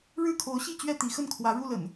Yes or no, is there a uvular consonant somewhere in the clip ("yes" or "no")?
no